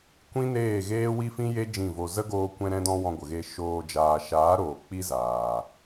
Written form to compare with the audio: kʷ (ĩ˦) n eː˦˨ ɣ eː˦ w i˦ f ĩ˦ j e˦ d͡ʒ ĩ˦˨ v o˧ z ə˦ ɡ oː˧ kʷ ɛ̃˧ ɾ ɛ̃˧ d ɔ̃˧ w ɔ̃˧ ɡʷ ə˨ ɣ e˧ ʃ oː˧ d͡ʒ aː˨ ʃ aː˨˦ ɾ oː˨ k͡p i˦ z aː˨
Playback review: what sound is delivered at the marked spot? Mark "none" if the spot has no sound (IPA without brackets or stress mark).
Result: ĩ˦